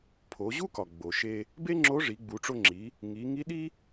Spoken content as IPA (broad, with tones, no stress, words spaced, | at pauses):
pʰo˩˧ʑu˥kɒ˩ ɡ͡bo˩ ʃe˧ | be˥ŋ͡ǁo˧˥ʐi˩˧ ɡ͡bu˩˧ʈ͡ʂo˧ŋ͡ǁi˩˧ | ŋi˩˧ŋi˧˥ ɗi˥